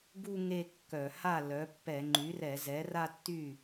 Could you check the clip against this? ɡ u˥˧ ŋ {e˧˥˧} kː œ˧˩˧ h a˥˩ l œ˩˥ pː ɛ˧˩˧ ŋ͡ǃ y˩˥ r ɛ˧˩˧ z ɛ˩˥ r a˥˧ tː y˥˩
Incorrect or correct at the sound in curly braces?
incorrect: e˥˧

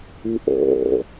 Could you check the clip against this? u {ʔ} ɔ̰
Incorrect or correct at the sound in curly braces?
correct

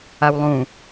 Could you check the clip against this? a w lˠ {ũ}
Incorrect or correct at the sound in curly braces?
correct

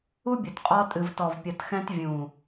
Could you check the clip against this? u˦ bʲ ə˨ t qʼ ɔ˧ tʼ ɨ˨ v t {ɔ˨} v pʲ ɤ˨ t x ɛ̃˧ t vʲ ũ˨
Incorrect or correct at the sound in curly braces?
correct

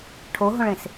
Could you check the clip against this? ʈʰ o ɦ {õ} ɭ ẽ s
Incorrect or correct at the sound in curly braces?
correct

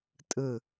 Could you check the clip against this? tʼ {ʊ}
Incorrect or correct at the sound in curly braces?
incorrect: ɯ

